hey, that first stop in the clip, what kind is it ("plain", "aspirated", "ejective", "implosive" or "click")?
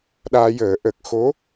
implosive